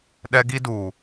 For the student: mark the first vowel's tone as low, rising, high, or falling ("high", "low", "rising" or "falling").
high